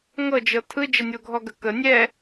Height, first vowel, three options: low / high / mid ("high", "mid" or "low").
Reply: mid